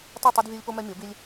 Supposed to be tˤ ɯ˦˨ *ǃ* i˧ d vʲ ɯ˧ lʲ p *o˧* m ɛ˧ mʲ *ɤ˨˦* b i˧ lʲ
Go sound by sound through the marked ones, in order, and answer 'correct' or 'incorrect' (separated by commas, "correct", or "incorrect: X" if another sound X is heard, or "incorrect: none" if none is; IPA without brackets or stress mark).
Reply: incorrect: tˤ, correct, correct